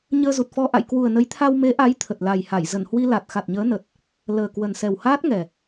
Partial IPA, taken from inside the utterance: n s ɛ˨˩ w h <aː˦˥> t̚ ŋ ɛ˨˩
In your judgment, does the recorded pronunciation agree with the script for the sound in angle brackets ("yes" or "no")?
yes